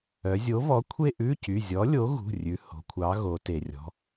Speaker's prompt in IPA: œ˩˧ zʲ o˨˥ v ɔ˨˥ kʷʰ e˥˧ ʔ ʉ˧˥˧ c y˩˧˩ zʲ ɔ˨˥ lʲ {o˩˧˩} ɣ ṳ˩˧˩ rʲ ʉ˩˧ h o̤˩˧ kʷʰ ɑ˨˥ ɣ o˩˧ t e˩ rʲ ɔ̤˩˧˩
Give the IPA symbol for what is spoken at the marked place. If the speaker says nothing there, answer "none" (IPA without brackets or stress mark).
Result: o˨˥